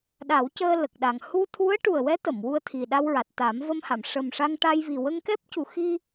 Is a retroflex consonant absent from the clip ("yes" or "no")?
no